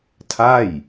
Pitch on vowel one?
falling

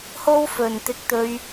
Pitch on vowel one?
high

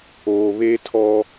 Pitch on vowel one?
low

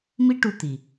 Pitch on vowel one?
high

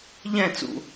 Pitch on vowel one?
falling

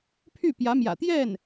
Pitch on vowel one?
falling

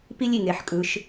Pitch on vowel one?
high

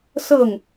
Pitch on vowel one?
falling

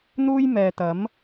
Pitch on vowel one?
high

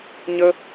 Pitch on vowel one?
high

